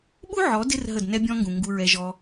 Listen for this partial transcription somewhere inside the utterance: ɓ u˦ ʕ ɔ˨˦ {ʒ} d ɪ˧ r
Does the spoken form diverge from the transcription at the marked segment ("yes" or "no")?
yes